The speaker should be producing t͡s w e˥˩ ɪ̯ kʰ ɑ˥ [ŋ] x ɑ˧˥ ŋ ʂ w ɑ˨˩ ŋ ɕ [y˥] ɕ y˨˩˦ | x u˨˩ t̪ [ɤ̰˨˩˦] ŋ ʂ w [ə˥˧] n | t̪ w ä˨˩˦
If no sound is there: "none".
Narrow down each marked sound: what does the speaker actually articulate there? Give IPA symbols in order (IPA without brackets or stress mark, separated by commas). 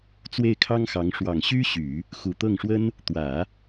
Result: ŋ, y˥, ɤ˥˩, ə˥